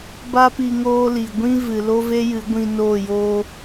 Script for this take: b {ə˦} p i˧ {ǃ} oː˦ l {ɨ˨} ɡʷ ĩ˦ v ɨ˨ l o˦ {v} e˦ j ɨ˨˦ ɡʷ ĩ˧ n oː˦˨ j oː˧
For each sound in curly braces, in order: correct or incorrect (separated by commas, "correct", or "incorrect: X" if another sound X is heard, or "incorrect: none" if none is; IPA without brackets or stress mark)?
incorrect: a˦, incorrect: ŋ, incorrect: i˨, correct